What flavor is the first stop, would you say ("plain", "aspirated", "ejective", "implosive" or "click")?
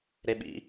implosive